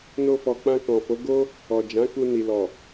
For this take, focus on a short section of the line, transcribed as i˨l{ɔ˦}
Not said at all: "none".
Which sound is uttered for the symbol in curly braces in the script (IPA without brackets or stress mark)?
ɔ˨